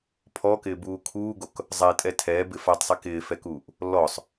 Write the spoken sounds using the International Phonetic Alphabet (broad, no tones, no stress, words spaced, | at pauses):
pʰɔkɪːbuː kʰuːɡok | zˤae̯tʼɛ tʰɛːbɪ fatˤsˤi kɪːfɛkuːʔ | lːɔsˤ